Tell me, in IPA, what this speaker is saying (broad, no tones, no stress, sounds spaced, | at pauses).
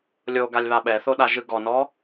lʲ o ɡ a lʲ β a ɓ ɛ θ o ɗ a ʒ ɯ ɡ ɔ n ɔ